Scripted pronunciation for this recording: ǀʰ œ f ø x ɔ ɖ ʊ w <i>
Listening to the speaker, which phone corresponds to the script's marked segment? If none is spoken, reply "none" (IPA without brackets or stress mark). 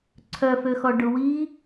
i